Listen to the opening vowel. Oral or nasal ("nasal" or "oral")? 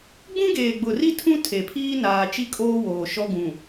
nasal